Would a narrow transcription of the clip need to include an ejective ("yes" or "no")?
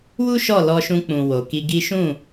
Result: no